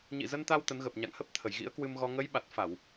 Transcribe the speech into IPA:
ɲ ḭ˧˨ z ə˧ n t̪ a˧ w t̪ ə˨˦ n ɣ ə˨˩ p̚ ɲ a̰˧˨ ŋ h ə˦˥ p̚ t̪ʰ ə˧˩ j ɣ ḭ˧˥ ə̯ k w ɨ˧ m ɣ ɔ˧ ŋ ə˨˦ j ɓ a˨˩ t̚ f a˧˩˨ w

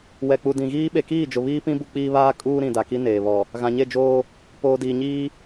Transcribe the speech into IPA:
w ɛ˨ k͡p u˨ d ĩ˨ ɣ iː˦ ɓ e˨ k iː˦˨ d͡ʒ ʊ˨ β iː˦ p ĩ˦ b u˦ k͡p iː˦ β aː˦ kʼ uː˦ ɾ ĩ˨ d a˨ k i˦ n eː˨ β ɔ˨ | ɣ ã˨ ɲ e˦˨ d͡ʒ oː˦ | p oː˨ d iː˨ ɲ iː˦

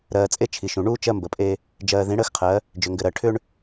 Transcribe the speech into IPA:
ɾ ɜː˨ t͡sʼ e˦ t͡ʃʰ i˨ ʃ ũ˨ ɳ uː˦ t͡ʃ ɜ˦ m b ə˨ pʼ e˦ | d͡ʒ ɜː˨ ð ĩ˨˦ ɽ əː˦ x qʰ ɜ˨˦ | d͡ʒ ʏ˨ ŋ ɡ ɘ˨ ɾ ɜ˨ ʈʰ ʏ˦ ɳ

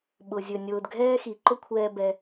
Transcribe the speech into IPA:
ɓ ʊ˩ zʲ ɵ˩ nʲ ʊː˩ d ɡʱ ɛː˥ x i˩ ǃ ʊ˥ kʷʰ ɛː˧ b ɛ˧

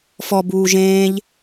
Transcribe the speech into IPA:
f ɔ b uː ʒ ẽː ʎ

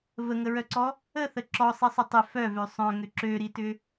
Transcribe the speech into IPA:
v ə ŋ ə ɹ œ ǀ ɔ | ə θ ə ǁ ɔ sˤ i sˤ ʏ tˤ ɪ f œ v ø sˤ œ̃ ŋ ʏ ǁ ø ɾ i t ʏ

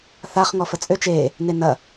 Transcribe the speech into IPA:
θ a χ ŋ ɔ f ə t͡sʼ ø t͡ʃ e | n e n ɐ

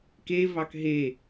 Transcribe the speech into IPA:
k e v ɑ k ɦ e

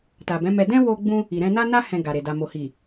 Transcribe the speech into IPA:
t a˨ b ɛ̃˨˦ m ɛ˧ d ɛ̃˦ w o˧ ɡ͡b ũ˧ | i˨ ɾ ɛ̃˧ n a˦ n a˦ h ɛ̃˧ ɡ a˨ ɾ e˨ d a˨ m o˨ h i˨

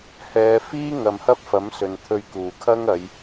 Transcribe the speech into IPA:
h ɛː˨˧ f iː˥ ŋ ɐ˨ m h ɐ˥ p̚ f ɐ˨˥ m s ɵ˨ n t̪ʰ ɵ˧ ɥ k uː˨˩ kʰ ɐ˥ ŋ ɐ˨˧ j

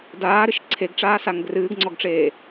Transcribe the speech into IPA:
d aː ɾ ɨ ʃ ǀʰ e ɡ ʈ͡ʂ aː s a ŋ ɡ r ɨː ɡ ŋ͡ǀ ɔ ɡ ʈ͡ʂ eː

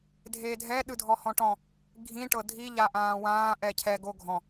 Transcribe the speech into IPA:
dʱ eː dʱ ɛ ɗ ɯ dʱ ɔ h ɔ̃ ʈ ɔ̃ | ɡʱ ĩ ʈ ɤ dʱ i ʎ a ʔ ãː w ãː ʔ ɛ cʰ ɛ ɡ o ɡʱ ɔ̃

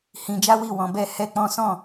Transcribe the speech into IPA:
h ĩ˧ d͡ʒ a˦ w i˦˨ w ɔ̃˧ b ɛ˦ h ɛ˦ k͡p ɔ̃˦ s ɔ̃˦˨

